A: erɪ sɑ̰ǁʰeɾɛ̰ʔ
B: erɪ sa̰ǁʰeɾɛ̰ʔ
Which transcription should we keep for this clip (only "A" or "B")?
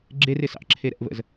A